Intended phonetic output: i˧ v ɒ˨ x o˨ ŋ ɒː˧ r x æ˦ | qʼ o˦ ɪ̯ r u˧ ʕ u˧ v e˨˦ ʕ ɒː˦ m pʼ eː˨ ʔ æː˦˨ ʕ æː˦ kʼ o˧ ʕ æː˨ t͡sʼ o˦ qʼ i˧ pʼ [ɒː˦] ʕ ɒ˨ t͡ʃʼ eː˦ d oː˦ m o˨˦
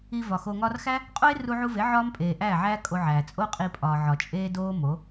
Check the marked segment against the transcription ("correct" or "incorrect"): incorrect